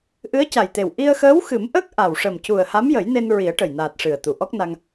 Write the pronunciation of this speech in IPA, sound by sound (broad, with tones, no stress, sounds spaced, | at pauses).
ʔ ɨ˧˥ ə̯ c a˨˩ j t̪ e˨˩ w ʔ i˧ ə̯ x əː˧˥ w x ɨ˨˩˦ m ʔ əː˦˥ k̚ ʔ a˨˩ w ʂ ə˨˩ m c u˨˩ ə̯ h a˧˥ m j ə˨˩˦ j n e˧ n ɹ i˨˩˦ ə̯ ʈ ə˨˩ j n aː˨˩ t̚ ʂ ɨ˨˩ ə̯ t̪ u˨˩˨ ʔ ɔ˦˥ k̚ n a˧ ŋ